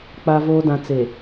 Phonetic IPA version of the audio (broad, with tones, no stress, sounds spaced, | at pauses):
k͡p a˨ v oː˨ d ã˨ t͡s e˨